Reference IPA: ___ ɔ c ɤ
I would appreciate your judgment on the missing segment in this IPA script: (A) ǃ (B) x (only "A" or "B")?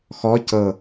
B